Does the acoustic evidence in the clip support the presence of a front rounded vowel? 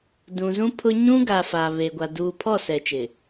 no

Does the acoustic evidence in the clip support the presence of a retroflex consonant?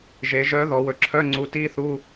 no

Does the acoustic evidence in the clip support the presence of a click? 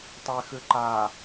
yes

